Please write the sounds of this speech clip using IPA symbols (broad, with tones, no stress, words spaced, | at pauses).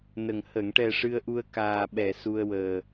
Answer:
nə˨˩ŋ hə˨˩˨ŋʈɛ˨˩ ʂɨ˧ə̯ʔu˧ə̯kaː˨˩ɓɛ˨˩˨ su˧ə̯wəː˨˩